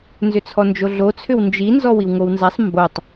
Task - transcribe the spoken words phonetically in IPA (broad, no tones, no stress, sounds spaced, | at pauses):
n z ʏ t͡sʰ ɔ n d͡ʒ o ɮ o t͡sʰ ʏ w n d͡ʒ i n z ɔ w i w ŋ o w n z a sˤ m b o tˤ